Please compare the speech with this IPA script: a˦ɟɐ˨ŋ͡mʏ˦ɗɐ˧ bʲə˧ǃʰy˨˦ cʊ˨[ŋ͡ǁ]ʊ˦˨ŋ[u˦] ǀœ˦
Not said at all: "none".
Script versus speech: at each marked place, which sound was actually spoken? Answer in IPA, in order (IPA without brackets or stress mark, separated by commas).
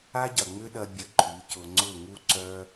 ŋ͡ǀ, u˦